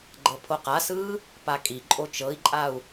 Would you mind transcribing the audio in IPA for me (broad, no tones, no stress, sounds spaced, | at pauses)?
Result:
ɡ͡ǃ ɤ pʰ o q a s ɯː | p a kʼ i ǃʼ o t͡ʃ ɤ i̯ ǃʼ a u̯